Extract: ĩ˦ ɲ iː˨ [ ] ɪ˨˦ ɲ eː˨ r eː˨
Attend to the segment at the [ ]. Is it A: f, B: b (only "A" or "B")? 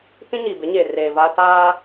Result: B